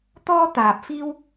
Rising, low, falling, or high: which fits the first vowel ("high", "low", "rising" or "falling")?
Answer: high